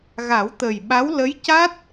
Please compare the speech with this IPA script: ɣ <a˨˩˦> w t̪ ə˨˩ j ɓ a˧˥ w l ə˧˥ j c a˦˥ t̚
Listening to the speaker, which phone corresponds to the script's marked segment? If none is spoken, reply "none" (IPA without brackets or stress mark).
a˨˩˦